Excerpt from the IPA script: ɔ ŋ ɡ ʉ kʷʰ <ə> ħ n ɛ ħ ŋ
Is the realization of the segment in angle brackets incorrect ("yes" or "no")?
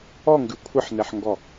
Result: no